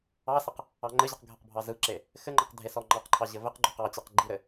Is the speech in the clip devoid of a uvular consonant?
no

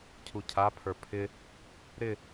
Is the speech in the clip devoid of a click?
yes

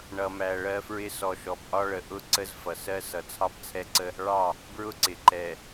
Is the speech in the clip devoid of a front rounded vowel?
yes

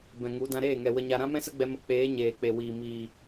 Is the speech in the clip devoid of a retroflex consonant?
yes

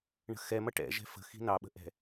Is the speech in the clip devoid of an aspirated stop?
yes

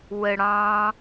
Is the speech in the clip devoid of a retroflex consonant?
no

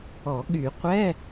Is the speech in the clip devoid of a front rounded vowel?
no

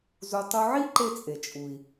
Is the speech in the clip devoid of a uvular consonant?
yes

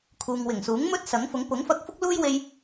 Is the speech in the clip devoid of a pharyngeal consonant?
yes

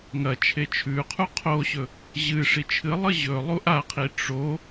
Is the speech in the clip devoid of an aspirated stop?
no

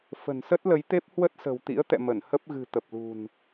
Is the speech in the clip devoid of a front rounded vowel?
yes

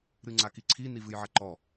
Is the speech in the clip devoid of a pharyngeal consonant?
no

